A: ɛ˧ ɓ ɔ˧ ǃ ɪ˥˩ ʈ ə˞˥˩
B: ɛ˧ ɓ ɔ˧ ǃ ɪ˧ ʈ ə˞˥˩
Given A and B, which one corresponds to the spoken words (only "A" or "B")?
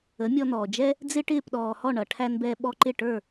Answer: A